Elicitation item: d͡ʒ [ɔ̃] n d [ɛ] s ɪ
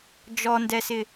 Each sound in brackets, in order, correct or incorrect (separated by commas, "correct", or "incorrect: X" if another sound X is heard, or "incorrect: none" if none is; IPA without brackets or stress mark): incorrect: ɔ, correct